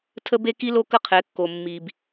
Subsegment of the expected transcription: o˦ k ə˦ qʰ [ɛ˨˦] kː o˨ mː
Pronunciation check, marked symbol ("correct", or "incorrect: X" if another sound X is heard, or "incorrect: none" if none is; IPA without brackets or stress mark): correct